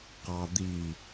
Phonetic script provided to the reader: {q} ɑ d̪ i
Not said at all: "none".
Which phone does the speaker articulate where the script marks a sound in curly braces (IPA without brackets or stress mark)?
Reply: q